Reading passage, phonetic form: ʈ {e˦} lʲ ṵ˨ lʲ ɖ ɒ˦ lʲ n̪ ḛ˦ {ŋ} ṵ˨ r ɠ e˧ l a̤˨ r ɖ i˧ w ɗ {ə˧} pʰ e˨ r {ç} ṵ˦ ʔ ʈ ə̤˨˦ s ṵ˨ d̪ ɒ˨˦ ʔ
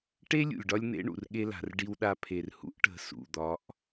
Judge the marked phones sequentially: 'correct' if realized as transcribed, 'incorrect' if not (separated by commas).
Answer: correct, incorrect, incorrect, incorrect